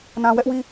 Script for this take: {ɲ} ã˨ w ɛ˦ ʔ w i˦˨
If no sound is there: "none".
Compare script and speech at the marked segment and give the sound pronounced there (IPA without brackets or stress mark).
n